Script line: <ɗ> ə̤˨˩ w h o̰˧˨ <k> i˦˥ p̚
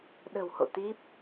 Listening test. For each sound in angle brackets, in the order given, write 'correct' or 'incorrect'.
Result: correct, incorrect: t̪

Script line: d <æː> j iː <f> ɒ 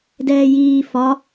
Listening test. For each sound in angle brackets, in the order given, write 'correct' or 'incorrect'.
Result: incorrect: ɛː, correct

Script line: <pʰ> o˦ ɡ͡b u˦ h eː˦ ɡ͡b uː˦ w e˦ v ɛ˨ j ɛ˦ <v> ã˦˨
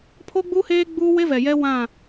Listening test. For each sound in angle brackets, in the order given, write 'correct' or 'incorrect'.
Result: correct, incorrect: w

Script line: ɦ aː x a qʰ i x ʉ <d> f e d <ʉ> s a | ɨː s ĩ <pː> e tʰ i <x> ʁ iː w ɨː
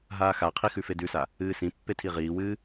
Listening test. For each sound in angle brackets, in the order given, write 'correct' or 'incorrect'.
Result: incorrect: none, correct, correct, incorrect: none

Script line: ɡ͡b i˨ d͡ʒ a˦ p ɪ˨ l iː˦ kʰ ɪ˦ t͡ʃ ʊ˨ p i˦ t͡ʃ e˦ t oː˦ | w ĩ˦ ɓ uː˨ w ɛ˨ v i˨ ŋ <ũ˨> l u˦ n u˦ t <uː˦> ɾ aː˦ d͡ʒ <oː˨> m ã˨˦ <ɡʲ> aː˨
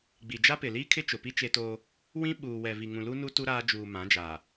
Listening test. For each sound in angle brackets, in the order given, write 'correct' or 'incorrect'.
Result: correct, incorrect: u˦, incorrect: uː˨, incorrect: d͡ʒ

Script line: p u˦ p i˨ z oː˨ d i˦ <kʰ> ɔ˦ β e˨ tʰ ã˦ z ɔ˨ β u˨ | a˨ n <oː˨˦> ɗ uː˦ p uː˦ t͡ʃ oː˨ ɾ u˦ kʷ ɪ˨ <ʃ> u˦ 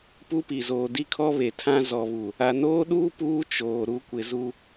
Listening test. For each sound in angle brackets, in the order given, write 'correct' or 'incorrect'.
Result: correct, incorrect: oː˦, incorrect: z

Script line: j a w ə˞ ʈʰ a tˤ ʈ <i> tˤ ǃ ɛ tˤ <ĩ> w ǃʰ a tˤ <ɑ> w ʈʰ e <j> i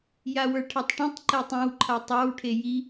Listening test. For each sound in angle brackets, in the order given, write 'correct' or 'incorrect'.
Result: incorrect: ĩ, correct, correct, correct

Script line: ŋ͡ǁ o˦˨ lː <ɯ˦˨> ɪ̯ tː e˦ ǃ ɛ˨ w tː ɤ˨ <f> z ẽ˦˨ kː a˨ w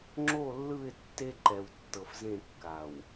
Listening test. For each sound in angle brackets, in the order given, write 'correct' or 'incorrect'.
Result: correct, correct

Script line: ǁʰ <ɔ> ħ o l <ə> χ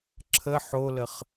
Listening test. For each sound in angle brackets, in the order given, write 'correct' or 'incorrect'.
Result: incorrect: ə, correct

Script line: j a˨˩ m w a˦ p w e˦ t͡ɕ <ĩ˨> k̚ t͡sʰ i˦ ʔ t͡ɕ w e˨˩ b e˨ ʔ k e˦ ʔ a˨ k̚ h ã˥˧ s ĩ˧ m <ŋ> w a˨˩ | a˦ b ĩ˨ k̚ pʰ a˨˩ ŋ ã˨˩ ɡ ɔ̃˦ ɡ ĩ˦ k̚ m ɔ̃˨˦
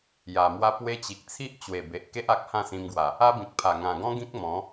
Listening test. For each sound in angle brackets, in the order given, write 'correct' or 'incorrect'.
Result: incorrect: i˨, incorrect: ɡ

